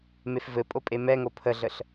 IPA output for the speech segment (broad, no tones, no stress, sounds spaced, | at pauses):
m e f v ɘ pʼ o pʼ e m ɛ ŋ o pʰ ə ɮ ə ɬ